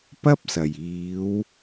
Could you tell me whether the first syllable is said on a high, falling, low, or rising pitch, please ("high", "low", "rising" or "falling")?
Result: high